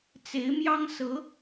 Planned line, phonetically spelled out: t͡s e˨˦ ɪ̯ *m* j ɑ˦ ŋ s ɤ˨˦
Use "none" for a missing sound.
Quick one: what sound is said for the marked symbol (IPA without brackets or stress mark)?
m